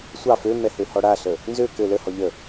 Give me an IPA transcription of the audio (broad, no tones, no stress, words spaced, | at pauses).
sʷɑ fømɛ høhɔɽaɬə | nzø kɘ ləhɔ ʎə